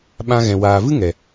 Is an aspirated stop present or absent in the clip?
absent